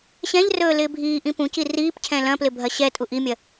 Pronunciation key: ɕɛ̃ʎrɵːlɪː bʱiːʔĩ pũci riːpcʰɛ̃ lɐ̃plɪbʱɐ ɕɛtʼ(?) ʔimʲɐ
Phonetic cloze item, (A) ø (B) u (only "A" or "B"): B